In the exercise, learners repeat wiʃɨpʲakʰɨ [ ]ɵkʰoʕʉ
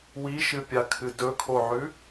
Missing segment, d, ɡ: d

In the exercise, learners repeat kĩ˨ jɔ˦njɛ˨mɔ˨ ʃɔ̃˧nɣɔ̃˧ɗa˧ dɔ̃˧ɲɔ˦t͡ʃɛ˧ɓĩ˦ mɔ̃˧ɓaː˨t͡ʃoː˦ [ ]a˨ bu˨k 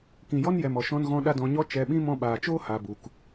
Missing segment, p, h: h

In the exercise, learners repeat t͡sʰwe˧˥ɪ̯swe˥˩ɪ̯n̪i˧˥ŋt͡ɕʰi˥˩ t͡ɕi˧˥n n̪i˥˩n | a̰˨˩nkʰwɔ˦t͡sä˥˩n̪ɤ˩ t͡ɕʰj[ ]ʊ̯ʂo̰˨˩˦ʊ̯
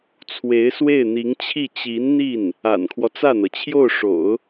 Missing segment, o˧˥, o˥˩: o˥˩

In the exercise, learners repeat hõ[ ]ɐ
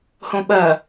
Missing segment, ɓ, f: ɓ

